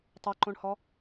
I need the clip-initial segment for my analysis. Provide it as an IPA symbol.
tˤ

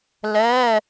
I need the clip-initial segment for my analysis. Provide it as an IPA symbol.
l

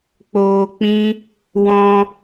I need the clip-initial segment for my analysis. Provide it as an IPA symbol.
k͡p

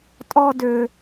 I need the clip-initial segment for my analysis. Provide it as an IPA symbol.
tʼ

